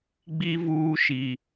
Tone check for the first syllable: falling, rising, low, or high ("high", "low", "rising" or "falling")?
high